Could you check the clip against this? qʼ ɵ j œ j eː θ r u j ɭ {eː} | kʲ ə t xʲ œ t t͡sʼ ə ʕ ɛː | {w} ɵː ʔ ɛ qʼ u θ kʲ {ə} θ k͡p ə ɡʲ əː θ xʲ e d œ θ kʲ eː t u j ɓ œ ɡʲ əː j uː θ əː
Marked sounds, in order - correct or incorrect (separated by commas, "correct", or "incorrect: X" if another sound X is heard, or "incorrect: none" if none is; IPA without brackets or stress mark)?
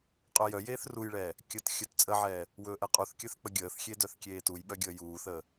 incorrect: ɛː, correct, incorrect: œ